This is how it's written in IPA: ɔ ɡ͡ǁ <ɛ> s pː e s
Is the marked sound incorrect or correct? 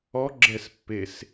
correct